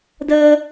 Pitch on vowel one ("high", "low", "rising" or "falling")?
high